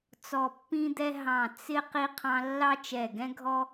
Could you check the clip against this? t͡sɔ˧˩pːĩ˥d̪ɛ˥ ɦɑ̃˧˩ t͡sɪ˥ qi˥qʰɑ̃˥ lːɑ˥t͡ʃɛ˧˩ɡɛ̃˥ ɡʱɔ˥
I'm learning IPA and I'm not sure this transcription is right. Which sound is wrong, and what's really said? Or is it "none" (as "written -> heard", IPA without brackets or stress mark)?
none